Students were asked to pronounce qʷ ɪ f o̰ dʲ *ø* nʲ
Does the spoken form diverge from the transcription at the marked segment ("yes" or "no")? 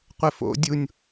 yes